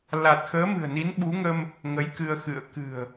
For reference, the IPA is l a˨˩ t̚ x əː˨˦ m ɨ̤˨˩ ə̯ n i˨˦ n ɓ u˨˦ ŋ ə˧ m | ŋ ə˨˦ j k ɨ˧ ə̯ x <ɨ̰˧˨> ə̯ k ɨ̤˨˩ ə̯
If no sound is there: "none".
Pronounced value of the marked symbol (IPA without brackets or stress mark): ɨ̰˧˨